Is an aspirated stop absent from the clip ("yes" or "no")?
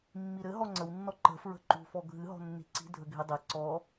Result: yes